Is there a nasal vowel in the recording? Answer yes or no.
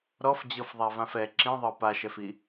yes